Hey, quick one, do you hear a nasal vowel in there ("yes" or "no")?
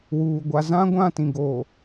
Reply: yes